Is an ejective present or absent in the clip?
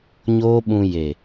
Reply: absent